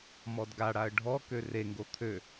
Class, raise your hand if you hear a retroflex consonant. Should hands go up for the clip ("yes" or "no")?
yes